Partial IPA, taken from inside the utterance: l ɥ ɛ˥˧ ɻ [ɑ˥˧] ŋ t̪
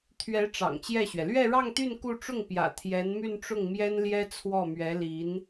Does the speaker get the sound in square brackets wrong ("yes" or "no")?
no